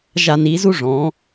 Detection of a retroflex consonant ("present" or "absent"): present